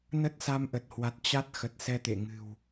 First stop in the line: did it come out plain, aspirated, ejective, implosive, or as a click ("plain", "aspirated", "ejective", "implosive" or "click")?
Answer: plain